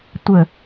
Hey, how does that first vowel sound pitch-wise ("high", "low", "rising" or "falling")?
low